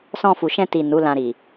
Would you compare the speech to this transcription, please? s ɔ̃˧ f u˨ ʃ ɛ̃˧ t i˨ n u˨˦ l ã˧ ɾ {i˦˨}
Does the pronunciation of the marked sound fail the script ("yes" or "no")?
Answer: yes